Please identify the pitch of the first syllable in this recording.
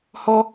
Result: high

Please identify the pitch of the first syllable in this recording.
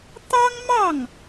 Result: high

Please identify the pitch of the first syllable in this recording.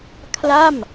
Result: falling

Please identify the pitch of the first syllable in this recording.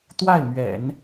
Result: falling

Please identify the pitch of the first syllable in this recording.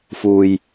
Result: low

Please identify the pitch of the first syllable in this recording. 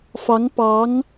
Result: rising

